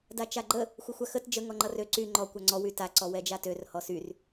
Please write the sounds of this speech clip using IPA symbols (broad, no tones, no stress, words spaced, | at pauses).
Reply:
dat͡ʃaɡ͡ǃə | xʷəxʷaxət d͡ʒə ŋɔŋ͡ǃʌrø ǀy ŋ͡ǃɔ kʷaŋ͡ǀɔ wyta ǀɔwɛd͡ʒatør hɔsyr